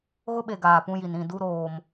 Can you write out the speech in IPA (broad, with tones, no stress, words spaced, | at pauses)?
ɣʊ˦ɓe˨ ɡaː˨pũ˦ji˨n ĩ˦˨ du˦ɾoː˨m